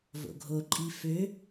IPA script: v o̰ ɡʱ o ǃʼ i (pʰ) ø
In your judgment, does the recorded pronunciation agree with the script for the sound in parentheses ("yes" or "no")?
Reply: no